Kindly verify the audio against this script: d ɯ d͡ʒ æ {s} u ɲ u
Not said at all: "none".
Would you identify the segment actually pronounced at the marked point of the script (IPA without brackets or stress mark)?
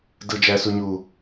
s